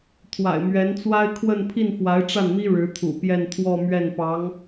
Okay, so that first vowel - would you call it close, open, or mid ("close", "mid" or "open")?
open